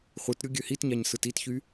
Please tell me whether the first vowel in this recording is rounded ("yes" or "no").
no